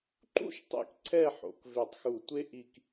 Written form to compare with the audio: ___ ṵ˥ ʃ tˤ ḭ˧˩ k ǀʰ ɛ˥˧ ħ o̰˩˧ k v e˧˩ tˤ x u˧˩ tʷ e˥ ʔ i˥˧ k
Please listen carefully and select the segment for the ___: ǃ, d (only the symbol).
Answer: ǃ